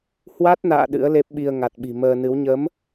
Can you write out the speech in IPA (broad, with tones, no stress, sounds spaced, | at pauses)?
h w a˦˥ t̚ n a̰ː˧˨ ɗ ɨ̰˧˥ ə̯ l e˦˥ p̚ ɓ i˧ ə̯ ŋ a˨˩ t̚ ɓ i̤˨˩ m əː˧ n ɨ˨˦ w ɲ ə˨˦ m